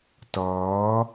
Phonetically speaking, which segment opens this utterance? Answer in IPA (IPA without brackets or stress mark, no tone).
t